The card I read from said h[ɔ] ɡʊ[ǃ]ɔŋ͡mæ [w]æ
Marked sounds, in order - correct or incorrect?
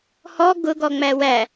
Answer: correct, incorrect: ɡ, correct

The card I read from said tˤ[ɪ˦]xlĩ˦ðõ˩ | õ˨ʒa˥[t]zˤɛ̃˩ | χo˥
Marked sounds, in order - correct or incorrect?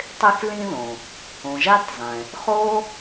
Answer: correct, correct

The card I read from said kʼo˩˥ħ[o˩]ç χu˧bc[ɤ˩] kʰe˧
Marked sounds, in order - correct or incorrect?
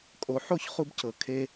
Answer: incorrect: o˥˨, correct

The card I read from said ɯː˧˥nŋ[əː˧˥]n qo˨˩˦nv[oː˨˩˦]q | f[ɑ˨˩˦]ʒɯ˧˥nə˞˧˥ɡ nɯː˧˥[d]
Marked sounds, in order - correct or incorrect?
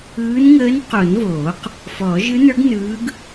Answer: correct, correct, incorrect: ɔ˨˩˦, incorrect: ɡ

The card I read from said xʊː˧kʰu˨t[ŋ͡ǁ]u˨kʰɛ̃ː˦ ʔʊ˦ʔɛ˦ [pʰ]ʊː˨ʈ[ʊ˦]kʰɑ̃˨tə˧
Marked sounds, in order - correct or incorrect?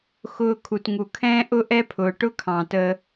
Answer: incorrect: ŋ, correct, correct

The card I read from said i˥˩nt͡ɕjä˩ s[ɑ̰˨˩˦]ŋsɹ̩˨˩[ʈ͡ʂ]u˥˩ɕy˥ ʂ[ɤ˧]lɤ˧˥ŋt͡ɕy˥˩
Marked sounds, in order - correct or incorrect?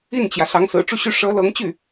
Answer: incorrect: ɑ˧˥, correct, incorrect: ɤ˧˥

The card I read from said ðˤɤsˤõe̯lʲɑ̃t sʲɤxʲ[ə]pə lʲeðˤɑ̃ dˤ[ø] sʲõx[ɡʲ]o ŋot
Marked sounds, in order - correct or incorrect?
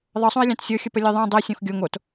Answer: correct, incorrect: e, correct

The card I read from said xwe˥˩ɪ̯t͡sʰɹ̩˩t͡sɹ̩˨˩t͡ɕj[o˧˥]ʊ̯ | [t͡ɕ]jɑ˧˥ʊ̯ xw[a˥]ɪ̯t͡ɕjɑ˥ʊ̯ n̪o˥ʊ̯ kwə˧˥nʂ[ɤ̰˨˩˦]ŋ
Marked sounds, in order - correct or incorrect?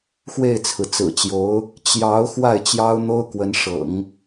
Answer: correct, correct, incorrect: a˥˩, correct

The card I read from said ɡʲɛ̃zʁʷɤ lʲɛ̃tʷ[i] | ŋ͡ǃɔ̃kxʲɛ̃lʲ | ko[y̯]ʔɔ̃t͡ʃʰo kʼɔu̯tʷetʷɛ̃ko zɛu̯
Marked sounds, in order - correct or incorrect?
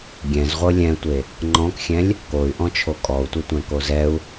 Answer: incorrect: e, correct

